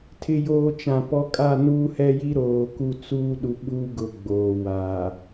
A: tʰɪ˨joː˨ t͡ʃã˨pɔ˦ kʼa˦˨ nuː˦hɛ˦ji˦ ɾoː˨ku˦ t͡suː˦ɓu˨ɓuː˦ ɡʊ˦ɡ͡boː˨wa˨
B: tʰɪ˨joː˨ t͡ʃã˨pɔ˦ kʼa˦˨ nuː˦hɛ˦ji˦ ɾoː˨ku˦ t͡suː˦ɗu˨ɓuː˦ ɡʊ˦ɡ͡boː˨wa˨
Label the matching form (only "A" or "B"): B